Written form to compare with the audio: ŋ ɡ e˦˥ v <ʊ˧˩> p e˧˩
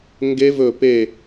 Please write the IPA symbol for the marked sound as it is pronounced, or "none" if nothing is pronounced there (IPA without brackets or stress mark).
ɵ˧˩